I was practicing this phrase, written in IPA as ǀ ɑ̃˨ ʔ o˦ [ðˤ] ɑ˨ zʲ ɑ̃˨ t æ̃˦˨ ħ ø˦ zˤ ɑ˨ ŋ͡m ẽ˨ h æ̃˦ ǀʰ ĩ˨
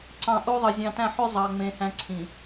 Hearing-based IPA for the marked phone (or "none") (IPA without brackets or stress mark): ðˤ